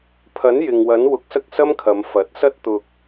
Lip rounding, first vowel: unrounded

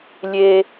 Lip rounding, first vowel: unrounded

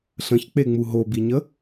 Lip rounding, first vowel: unrounded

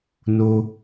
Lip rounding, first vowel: rounded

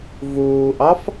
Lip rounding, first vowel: rounded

